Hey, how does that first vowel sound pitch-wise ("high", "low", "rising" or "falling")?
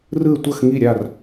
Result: falling